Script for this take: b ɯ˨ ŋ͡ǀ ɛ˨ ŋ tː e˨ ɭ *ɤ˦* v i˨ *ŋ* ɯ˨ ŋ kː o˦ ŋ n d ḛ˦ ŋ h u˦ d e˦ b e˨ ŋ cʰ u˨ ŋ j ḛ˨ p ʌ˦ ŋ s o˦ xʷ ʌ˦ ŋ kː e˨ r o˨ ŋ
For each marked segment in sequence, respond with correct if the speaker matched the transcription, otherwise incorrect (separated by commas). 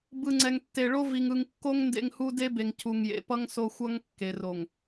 incorrect, correct